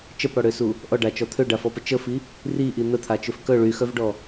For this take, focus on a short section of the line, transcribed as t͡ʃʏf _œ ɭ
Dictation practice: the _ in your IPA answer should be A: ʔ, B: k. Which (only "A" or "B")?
B